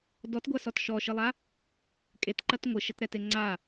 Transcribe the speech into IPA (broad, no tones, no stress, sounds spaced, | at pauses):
d ɔ t ɡʷ a s ɔ t ʃ ɔ ʃ ɨ lˠ a | kʼ e t ǃ ɐ t ŋʷ ɨ ʃ ɘ t ɾ ɛ t e ŋ͡ǀ a